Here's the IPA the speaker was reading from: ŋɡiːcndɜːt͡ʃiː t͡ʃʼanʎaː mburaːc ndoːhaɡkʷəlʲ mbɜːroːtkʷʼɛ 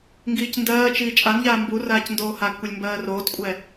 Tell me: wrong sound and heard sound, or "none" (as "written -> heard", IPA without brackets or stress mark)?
none